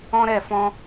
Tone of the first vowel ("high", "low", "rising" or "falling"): high